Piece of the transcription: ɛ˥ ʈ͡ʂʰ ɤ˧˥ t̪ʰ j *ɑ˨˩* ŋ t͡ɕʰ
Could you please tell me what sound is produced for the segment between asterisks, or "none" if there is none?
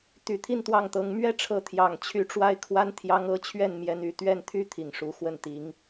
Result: ɑ˨˩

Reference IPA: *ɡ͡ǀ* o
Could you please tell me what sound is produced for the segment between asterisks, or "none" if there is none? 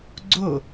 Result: ɡ͡ǀ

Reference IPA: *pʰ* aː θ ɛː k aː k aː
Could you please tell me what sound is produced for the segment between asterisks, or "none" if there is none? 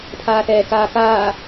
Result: pʰ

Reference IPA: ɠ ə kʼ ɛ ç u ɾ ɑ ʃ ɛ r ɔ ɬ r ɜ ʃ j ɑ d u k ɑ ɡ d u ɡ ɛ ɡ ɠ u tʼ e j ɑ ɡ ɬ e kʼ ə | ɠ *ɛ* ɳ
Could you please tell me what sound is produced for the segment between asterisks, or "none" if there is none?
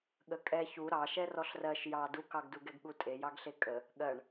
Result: ɜ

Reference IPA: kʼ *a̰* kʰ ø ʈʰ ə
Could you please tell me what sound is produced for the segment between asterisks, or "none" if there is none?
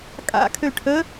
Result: a̰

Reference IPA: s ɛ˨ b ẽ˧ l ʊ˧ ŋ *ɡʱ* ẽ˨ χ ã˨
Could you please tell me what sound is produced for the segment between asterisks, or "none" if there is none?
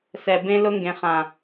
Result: ɡ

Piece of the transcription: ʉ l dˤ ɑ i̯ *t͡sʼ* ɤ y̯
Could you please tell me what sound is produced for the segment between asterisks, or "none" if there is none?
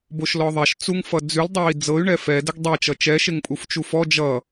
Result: d͡z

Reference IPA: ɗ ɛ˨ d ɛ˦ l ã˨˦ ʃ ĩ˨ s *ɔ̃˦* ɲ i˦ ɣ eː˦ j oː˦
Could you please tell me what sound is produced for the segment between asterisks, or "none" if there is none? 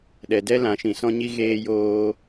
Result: ɔ̃˦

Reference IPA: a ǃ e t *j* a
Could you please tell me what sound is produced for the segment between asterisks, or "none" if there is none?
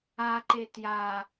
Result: j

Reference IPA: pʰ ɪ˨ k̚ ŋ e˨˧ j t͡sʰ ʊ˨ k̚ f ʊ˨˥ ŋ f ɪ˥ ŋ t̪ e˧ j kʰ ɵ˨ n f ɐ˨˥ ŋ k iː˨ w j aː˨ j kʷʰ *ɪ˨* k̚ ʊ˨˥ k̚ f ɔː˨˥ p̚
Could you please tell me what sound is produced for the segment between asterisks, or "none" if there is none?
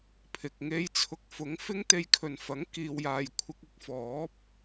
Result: ɪ˧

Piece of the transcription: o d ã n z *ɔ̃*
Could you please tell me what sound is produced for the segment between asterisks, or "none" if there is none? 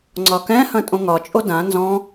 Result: ɔ̃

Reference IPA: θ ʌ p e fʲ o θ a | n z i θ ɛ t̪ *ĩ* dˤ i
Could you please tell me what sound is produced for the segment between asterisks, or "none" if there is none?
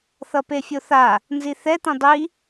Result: ĩ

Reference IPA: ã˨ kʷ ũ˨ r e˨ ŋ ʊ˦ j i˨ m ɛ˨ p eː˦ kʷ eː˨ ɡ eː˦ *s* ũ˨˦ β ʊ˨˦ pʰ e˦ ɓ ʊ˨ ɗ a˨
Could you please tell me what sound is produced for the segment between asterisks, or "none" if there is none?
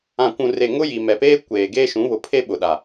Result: ʃ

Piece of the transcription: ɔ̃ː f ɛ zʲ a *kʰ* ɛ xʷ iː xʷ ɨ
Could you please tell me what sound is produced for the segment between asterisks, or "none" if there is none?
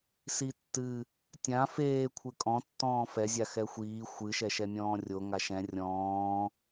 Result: x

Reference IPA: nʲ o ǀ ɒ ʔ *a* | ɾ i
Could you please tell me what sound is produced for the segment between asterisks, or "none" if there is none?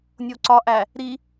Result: æ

